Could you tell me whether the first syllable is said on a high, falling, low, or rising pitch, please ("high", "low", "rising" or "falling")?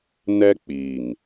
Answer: high